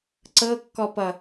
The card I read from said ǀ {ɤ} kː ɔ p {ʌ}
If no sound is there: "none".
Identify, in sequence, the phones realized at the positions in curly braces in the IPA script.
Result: ɤ, ʌ

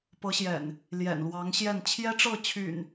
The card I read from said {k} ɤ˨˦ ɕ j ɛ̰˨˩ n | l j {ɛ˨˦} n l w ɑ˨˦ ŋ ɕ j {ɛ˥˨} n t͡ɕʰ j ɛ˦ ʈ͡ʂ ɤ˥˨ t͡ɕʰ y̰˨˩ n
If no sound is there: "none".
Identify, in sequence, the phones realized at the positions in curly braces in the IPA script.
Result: p, ɛ̰˨˩, ɛ˥˨

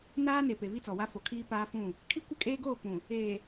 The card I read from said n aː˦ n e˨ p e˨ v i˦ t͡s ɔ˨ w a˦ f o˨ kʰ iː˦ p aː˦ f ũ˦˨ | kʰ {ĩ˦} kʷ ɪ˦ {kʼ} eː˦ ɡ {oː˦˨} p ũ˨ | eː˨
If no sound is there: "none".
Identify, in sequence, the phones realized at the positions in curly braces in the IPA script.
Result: i˦, kʼ, oː˦˨

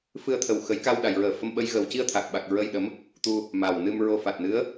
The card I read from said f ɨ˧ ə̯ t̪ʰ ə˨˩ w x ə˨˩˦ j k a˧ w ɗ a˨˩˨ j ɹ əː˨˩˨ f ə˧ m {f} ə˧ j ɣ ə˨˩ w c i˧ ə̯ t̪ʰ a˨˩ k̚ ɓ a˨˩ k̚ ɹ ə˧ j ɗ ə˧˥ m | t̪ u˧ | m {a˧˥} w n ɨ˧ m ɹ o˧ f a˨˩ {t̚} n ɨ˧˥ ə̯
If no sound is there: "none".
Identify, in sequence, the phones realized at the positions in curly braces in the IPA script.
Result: ɓ, a˨˩, t̚

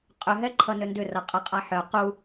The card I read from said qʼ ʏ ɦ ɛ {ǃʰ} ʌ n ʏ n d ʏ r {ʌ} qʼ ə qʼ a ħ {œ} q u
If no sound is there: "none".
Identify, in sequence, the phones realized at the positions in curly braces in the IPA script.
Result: ǃʰ, ʌ, œ

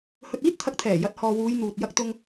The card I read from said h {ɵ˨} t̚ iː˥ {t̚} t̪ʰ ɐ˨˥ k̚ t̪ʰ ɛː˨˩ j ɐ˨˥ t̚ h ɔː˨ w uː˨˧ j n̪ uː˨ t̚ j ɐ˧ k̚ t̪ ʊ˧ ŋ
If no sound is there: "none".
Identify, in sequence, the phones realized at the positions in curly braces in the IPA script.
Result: ɵ˨, t̚

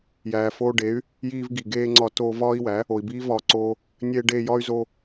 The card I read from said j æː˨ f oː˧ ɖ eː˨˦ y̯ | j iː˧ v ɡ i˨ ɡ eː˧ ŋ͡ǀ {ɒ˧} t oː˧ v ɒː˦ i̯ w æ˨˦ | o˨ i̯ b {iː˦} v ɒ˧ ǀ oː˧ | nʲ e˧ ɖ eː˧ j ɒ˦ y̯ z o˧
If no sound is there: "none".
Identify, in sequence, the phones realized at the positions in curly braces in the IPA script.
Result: ɒ˧, iː˦

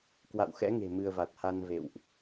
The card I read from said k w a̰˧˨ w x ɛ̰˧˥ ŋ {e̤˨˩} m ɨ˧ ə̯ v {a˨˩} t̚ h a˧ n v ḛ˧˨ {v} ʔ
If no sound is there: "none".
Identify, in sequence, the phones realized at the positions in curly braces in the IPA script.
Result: e̤˨˩, a˨˩, w

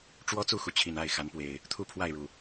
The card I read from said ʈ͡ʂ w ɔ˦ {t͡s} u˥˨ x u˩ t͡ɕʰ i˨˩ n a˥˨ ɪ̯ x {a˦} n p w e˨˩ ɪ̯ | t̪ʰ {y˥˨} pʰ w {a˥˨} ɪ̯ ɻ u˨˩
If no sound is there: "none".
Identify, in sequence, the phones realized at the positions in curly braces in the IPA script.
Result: t͡s, a˨˦, u˥˨, a˥˨

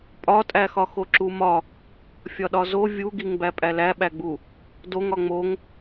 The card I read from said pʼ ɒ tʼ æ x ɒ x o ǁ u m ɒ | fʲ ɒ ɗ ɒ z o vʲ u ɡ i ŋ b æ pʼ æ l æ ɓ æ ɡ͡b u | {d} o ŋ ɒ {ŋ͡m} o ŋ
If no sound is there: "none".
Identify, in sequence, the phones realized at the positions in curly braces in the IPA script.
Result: d, ŋ͡m

